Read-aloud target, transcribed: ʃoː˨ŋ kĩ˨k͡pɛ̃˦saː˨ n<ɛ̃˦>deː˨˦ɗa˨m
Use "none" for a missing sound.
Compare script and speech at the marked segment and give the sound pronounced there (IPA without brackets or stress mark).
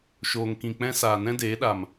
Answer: ɛ̃˦